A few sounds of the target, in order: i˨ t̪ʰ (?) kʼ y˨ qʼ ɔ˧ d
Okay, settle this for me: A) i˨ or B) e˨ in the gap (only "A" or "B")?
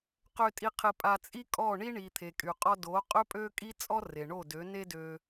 B